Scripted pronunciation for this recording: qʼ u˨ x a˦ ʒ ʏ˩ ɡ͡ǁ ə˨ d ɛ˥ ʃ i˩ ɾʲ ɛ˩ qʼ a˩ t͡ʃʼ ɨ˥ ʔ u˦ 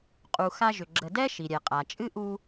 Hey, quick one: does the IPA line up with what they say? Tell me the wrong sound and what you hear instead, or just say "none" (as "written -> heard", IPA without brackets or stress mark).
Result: none